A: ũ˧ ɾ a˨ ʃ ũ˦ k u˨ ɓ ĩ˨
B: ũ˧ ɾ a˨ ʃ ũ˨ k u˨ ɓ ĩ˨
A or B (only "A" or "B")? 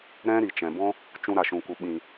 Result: B